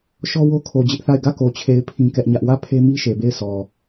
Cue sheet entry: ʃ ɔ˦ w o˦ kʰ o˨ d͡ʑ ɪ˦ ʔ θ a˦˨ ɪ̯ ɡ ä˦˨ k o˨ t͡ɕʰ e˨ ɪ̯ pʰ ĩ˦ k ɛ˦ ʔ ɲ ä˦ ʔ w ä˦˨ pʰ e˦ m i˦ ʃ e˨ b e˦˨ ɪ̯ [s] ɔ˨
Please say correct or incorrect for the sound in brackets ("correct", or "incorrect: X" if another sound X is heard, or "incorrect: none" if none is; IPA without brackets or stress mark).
correct